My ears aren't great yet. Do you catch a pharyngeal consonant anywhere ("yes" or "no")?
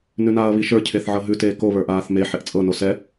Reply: yes